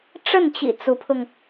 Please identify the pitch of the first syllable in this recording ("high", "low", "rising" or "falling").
falling